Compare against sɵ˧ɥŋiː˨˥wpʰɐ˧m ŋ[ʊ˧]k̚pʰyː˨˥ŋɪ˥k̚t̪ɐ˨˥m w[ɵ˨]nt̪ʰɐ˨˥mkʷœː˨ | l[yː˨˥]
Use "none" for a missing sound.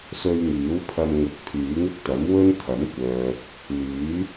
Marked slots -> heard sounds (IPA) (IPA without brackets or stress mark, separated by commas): ʊ˨, ɵ˥, yː˨˥